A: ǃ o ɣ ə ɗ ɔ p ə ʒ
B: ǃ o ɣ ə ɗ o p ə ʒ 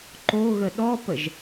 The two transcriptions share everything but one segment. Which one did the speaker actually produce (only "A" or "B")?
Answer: A